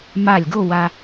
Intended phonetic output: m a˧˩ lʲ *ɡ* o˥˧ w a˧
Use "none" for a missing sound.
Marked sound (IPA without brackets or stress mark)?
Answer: ɡ